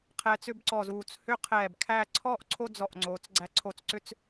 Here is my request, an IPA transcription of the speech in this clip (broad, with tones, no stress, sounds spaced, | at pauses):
qʰ ɛː˧ t͡s ʏ˥˧ b ǀ ɔ˧˩ z uː˧˩ t͡s h ʏ˥ qʰ ɛː˧˩ b kʰ æ˥˧ ǀʰ ɔ˥ ʔ ǀʰ o˥ d͡z ɔ˧˩ ʔ ŋ͡ǀ oː˩˧ t͡s ɡ͡ǀ æ˧ ǀʰ o˧˩ t͡s ǀ ʏ˥˧ t͡s